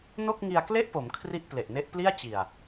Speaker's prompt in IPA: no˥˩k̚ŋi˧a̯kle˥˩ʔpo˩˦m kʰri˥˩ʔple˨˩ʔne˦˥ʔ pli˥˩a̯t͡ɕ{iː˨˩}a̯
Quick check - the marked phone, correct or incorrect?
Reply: incorrect